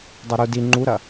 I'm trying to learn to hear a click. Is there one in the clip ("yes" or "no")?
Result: yes